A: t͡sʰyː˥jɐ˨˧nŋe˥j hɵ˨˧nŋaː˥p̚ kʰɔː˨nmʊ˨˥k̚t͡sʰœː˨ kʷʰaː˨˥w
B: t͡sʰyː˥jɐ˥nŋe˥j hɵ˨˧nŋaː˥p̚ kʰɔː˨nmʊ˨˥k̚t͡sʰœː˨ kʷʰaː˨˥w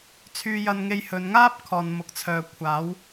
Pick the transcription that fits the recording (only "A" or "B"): B